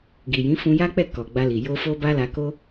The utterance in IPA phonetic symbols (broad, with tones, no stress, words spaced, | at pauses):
ɡi˨jĩ˨˦ fũ˧ja˦k͡pɛ˦˨ kɔ˨ɡ͡ba˧li˨ jo˧ fo˦ba˦la˧ko˦